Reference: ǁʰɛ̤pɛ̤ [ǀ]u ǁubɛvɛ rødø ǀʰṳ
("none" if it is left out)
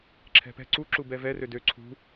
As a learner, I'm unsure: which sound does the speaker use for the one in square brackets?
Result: ǀ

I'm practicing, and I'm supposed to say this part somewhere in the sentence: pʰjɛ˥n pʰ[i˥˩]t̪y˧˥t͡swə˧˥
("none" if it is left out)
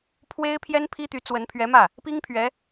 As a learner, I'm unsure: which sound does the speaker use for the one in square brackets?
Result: i˥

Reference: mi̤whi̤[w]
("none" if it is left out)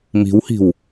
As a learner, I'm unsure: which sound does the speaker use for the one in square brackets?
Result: w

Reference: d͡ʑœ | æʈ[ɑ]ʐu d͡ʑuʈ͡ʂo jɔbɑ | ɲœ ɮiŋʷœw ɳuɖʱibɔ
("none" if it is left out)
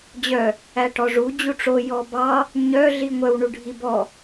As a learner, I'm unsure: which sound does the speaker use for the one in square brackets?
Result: ɔ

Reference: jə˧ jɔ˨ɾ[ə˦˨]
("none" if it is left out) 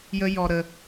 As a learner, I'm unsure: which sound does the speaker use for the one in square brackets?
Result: ə˨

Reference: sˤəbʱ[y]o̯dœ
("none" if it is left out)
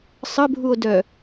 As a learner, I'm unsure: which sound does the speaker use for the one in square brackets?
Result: u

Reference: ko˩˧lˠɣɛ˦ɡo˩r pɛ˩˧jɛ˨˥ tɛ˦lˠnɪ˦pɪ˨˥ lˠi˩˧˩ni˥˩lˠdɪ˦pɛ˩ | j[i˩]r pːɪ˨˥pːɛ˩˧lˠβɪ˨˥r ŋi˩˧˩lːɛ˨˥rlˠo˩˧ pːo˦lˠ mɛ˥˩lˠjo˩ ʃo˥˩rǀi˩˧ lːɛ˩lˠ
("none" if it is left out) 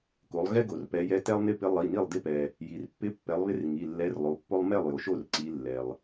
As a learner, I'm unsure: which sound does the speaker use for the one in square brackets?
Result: i˩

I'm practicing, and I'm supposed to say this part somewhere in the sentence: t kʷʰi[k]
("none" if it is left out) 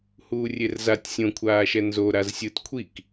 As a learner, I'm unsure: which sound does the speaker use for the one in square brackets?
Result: k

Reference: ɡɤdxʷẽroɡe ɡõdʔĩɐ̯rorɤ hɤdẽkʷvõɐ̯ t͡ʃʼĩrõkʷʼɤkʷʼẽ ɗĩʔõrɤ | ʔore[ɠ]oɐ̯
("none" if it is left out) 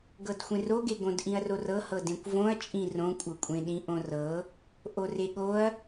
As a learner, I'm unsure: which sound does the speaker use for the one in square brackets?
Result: ɠ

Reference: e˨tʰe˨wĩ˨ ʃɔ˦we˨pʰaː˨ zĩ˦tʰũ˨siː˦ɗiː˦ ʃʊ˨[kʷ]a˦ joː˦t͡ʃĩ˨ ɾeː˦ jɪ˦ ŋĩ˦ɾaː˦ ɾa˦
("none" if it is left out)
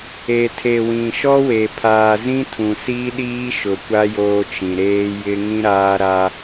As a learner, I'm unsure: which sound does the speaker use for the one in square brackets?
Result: kʷ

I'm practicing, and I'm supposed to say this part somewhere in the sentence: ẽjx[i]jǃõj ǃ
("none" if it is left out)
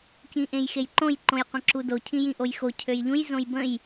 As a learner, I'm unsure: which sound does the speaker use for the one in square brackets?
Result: e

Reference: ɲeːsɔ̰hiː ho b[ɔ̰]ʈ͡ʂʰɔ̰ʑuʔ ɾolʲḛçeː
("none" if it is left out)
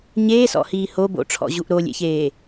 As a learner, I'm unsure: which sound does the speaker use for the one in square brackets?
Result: o̰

